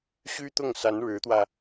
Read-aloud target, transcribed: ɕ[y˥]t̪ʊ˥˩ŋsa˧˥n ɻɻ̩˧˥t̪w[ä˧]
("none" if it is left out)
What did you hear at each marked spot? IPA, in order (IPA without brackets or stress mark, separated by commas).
y˥, ä˧